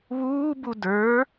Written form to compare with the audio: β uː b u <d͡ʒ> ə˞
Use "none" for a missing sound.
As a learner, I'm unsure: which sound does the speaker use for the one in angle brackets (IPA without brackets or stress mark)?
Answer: d